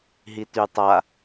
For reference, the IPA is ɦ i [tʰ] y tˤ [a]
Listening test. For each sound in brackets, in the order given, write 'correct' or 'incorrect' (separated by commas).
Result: incorrect, correct